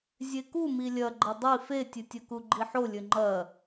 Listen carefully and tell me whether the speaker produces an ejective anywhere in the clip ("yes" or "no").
no